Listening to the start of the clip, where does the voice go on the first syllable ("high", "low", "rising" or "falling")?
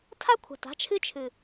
high